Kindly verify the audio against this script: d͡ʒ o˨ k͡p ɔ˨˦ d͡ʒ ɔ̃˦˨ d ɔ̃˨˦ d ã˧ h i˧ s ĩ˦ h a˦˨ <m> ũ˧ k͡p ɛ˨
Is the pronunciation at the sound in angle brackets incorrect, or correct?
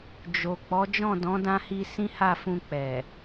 incorrect